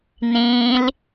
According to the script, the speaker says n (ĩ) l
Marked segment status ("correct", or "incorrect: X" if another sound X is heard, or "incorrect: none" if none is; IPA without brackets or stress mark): correct